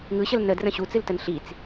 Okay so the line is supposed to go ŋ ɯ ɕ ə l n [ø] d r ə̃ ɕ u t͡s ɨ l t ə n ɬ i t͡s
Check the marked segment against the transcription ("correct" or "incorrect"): incorrect